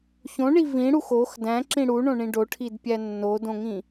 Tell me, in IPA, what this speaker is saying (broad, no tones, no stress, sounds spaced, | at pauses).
ç õ ɳ i v ĩ ɽ u x o x d æ̃ ǁ ĩ ɽ u ɳ õ ɳ ĩ ɖ o ʈʰ i d pʲ æ nː o d õ ŋ ĩ